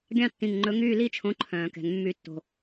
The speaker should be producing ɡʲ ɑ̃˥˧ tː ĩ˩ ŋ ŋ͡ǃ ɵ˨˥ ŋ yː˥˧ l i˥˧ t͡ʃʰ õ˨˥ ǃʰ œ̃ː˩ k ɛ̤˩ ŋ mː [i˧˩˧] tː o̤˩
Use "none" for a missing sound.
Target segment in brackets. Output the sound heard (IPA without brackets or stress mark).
y˧˩˧